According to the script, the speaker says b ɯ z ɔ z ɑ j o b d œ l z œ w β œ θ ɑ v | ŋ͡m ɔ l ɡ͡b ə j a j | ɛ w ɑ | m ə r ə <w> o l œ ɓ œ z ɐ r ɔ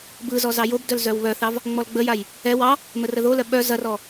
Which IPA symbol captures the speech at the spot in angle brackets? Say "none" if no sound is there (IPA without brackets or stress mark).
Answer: ð